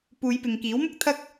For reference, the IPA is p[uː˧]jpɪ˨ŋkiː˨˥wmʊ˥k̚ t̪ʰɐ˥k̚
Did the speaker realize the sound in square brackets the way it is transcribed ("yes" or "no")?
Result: no